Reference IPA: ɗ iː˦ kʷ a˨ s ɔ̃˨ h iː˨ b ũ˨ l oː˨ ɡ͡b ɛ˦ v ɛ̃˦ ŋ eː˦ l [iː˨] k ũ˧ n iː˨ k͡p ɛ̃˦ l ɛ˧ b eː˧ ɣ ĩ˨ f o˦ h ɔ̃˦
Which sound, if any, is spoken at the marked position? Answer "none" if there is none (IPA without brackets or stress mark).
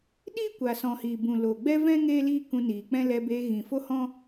iː˦